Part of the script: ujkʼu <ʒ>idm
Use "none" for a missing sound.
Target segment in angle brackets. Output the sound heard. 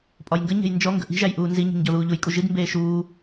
ʒ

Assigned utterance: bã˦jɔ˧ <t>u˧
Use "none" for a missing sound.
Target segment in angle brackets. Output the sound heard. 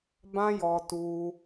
t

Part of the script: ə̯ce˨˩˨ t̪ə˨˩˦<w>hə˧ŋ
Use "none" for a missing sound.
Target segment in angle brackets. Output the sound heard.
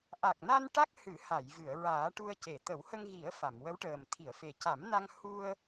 w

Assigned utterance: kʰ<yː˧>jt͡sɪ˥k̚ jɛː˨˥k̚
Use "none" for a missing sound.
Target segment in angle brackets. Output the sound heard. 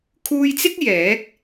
uː˧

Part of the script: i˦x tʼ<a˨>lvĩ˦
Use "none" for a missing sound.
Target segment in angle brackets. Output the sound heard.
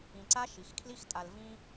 a˨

